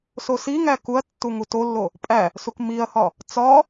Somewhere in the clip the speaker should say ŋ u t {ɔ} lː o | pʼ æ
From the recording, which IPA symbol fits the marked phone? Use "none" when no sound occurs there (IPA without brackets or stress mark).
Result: o